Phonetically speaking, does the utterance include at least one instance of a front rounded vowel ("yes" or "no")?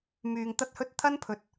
yes